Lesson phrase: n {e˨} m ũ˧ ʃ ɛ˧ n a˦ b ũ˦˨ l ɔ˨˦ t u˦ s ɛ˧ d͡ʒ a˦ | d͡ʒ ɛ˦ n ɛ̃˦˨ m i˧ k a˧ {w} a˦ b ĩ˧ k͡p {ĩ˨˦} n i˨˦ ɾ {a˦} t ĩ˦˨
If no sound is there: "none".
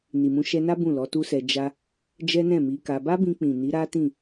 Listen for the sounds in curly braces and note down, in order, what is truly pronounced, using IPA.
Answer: i˨, b, ĩ˨, a˦

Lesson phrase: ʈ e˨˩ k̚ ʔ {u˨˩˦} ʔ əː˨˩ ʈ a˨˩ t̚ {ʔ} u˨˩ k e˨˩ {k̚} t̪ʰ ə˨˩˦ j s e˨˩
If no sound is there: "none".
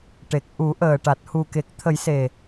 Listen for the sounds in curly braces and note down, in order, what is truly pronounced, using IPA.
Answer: u˨˩˦, h, k̚

